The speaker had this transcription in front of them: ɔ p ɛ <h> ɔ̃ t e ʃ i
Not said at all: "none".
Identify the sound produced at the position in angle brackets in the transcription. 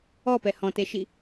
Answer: h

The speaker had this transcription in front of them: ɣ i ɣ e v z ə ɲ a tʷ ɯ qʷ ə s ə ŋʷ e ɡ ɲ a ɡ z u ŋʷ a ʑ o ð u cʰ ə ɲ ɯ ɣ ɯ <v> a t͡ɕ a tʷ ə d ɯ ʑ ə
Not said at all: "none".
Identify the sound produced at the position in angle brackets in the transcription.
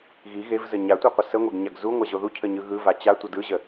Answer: v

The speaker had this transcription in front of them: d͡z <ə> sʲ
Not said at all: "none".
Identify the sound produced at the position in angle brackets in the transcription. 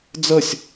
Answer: ə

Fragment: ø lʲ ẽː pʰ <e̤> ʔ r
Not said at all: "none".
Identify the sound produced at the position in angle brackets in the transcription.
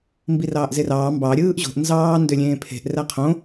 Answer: e̤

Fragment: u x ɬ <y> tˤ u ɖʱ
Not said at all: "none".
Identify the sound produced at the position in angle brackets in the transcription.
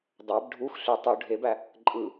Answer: y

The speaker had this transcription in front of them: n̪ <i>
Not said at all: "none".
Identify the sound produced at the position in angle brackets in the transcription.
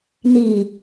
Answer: i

